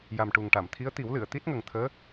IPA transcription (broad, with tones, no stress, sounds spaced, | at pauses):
j a˨˩ m ʈ u˨˩ ŋ ʈ a˨˩˨ m t̪ʰ i˧˥ ə̯ t̪ i˨˩˦ w l ɨ˨˩˨ ə̯ t̪ i˦˥ t̚ ŋ ə˨˩ ŋ t̪ʰ əː˧˥